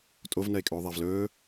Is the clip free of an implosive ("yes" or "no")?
yes